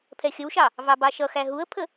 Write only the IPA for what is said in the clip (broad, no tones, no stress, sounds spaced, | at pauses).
pʰ ɛ xʲ ə w ʃ ɑ | v ɑ b ɑ ʃ ʌ x æ ɦ u ə̯ pʰ ə